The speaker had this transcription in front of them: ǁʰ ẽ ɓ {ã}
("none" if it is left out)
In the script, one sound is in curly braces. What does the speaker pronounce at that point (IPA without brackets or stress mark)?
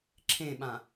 ã